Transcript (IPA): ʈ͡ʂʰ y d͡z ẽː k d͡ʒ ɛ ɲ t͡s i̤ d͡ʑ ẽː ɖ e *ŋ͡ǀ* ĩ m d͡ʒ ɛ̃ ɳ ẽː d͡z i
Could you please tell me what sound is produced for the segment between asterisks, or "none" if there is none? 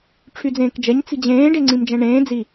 ŋ͡ǀ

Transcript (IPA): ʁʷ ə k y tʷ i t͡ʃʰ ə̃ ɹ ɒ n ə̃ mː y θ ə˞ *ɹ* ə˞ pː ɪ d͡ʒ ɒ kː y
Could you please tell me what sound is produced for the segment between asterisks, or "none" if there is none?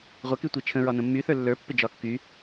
lː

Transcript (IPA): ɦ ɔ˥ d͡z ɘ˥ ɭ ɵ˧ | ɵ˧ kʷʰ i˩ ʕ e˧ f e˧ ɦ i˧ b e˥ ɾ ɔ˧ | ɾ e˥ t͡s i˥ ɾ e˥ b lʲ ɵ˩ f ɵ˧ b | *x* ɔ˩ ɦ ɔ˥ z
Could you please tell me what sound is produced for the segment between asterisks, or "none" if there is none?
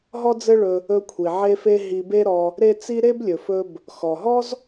x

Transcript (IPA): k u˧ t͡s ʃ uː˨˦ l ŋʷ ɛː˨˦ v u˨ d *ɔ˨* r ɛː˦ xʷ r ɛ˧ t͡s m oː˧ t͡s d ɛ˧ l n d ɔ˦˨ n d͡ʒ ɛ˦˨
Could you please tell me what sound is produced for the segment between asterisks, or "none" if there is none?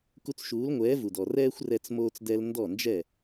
ɔ˨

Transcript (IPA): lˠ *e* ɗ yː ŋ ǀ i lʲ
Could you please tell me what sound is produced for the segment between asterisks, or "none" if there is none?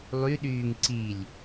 y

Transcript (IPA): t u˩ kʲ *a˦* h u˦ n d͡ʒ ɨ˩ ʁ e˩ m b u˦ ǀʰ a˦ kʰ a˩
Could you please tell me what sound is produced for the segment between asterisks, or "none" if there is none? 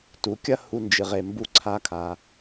ɐ˦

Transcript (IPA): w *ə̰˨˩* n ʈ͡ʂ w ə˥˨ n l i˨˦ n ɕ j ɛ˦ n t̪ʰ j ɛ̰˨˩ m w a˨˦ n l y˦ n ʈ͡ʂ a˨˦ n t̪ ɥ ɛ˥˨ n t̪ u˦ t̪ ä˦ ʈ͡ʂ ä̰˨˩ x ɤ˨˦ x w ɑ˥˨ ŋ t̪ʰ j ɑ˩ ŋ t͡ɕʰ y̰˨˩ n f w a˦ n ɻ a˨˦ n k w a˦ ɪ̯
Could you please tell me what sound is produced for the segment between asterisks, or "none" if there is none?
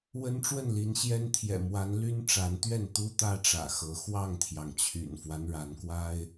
ə˦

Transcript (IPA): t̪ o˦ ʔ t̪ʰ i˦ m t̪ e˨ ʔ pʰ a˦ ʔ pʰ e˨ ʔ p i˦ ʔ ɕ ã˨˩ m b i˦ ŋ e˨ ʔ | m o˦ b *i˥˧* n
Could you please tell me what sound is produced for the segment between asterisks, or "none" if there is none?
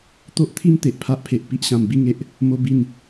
i˥˧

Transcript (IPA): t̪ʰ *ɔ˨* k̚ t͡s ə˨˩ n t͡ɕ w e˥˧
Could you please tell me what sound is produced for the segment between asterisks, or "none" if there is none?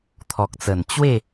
ɔ˨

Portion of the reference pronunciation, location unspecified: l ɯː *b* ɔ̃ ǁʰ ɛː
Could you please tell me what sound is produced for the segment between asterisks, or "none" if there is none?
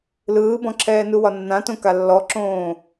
b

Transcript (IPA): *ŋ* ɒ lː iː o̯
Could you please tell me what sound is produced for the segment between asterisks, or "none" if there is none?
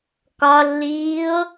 k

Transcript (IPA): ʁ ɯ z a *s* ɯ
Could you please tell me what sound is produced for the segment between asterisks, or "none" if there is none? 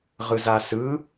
s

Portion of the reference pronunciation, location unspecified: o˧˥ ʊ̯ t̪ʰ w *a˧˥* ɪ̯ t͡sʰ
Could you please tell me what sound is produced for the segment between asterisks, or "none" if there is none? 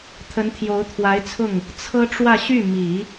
a˧˥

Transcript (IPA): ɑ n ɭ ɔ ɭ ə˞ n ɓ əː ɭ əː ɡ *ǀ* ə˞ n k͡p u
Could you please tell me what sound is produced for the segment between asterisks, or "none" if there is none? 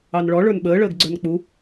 ɡ͡ǀ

